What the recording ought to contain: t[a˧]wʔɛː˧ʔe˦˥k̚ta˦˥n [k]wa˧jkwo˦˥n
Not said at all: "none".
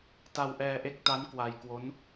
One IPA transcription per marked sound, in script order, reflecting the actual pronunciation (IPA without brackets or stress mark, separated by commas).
a˧, k